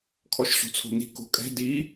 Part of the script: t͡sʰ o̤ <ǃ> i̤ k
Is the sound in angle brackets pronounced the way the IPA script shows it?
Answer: no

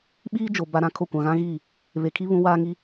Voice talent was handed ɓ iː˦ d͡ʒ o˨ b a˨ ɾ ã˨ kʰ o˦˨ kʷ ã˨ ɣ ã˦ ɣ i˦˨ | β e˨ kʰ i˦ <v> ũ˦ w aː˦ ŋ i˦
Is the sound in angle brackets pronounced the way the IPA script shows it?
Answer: no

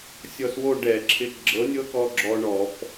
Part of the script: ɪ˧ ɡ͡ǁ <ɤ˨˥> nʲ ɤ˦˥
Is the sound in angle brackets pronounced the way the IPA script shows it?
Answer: yes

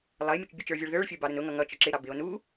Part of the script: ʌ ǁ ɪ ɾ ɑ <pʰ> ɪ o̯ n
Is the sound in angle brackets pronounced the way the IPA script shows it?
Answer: no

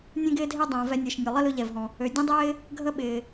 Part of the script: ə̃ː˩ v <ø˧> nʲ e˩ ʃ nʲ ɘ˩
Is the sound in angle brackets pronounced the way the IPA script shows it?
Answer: no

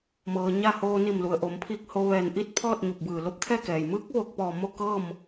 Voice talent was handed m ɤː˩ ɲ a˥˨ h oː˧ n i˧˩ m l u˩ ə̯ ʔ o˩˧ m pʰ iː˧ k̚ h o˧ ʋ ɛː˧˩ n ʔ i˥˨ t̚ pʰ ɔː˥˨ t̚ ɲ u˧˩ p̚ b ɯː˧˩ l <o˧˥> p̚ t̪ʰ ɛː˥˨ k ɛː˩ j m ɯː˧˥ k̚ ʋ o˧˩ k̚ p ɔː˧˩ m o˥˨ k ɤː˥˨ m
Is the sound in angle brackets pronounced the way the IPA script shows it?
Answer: yes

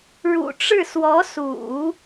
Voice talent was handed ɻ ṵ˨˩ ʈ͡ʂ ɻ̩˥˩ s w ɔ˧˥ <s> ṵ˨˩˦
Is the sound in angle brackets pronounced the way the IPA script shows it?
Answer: yes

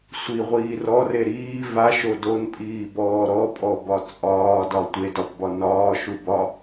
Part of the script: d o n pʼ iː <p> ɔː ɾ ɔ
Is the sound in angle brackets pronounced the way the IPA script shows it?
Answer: no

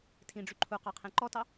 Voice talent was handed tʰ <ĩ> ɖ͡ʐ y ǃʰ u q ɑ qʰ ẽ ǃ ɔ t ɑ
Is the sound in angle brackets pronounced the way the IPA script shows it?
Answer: yes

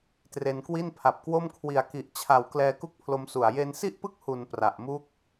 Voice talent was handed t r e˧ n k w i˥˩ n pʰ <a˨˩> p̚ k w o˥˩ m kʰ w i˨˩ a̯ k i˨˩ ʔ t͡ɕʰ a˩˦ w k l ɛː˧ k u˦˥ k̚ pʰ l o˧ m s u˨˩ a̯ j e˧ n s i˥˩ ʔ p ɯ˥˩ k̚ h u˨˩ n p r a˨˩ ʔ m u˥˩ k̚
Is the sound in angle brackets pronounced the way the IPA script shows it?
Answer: yes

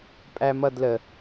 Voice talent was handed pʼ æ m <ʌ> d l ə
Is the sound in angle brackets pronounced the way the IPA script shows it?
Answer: yes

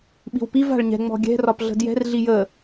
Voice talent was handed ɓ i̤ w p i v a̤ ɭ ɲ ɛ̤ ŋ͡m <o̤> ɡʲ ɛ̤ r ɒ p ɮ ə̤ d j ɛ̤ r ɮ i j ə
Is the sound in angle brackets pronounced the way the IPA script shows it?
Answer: no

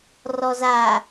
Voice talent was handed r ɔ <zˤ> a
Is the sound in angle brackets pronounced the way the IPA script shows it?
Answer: no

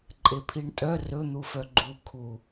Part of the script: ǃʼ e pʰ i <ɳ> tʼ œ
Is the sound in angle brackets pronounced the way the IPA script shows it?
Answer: yes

